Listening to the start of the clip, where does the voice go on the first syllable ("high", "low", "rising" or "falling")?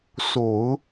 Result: low